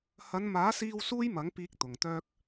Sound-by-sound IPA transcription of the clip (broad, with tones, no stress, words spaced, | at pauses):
hɐ˨˧nmaː˨˥siː˧w suː˥jmɐ˨˥ŋ piː˨k̚ t̪ʊ˨˩ŋt̪œː˧k̚